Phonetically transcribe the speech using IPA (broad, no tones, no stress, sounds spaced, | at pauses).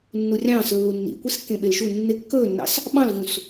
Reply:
nː u rʲ ɑ̃ː s lː u nː ḭ kʷ i s kː ẽ ɓ e l ʃ u nː ɪ kː ɵː nː ɑ̰ s | ɓ ɑ̃ l v ũ s